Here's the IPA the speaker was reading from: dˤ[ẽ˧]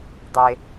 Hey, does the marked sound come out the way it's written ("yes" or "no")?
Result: no